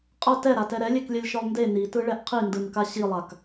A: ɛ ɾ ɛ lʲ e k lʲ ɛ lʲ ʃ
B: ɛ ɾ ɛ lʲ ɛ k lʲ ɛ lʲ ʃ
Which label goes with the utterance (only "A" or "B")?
A